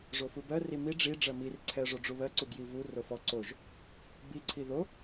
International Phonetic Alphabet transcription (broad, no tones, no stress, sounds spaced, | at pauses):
ʐ o f u b ɜ r i m i ɖ͡ʐ i ɖ͡ʐ ɜ m i r ǀʰ ɛ ʐ o ɖ͡ʐ u β ɜ ǀ u ɡ j i v u r o f ɔ ǀ o ʒ | b i ǀʰ i ð o